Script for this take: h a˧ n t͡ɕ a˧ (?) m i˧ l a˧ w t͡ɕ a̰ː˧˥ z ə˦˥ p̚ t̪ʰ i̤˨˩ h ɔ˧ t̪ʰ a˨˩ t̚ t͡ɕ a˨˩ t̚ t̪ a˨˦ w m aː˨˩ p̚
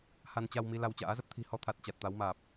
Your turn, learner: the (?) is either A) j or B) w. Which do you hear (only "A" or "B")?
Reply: B